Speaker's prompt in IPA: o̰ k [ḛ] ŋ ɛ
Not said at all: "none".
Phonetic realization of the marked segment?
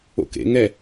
ḛ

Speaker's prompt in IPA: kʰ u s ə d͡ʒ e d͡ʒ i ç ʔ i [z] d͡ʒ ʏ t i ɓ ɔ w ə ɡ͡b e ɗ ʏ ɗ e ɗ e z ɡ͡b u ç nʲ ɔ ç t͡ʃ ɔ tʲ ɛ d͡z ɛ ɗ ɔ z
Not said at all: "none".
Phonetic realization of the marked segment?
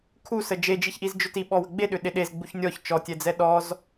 z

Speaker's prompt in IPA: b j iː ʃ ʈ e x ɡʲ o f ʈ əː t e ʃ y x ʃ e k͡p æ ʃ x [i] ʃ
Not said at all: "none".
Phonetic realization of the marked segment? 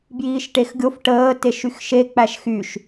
y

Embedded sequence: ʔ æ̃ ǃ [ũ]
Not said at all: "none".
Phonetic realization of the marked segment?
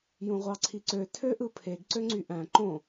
õ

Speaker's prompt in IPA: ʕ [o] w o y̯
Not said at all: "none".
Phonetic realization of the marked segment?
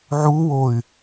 u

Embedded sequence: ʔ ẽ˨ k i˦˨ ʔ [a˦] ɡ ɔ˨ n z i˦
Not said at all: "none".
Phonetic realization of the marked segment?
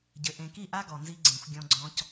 a˦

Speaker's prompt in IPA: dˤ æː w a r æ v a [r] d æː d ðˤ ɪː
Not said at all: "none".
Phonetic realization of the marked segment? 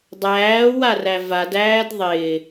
none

